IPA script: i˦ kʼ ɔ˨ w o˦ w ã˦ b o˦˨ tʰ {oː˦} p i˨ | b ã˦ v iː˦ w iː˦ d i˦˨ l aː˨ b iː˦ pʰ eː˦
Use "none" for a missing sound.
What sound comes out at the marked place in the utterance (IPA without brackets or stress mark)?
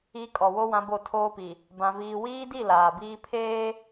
oː˦